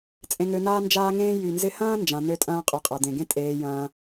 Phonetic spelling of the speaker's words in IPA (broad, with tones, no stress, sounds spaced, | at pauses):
t͡sʼ ẽ˧ ŋ ø˧ n aː˦ n d͡ʒ aː˦ ŋ ẽː˦ j y˨ n z ɪ˧ h ɐ̃ː˦ n d͡ʒ ã˧ n ø˦ tʼ ɐ̃ː˦ qʼ y˨ qʼ a˨ d̪ ẽ˨ ɡ ẽ˦ tʼ eː˧ j ɐ̃ː˧